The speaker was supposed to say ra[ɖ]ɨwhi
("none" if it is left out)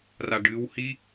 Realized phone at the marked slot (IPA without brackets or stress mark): ɖ